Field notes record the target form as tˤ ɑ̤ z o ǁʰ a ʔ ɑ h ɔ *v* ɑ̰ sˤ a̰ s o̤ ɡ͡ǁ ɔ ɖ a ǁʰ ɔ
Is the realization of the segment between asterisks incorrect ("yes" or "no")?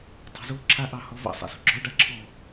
no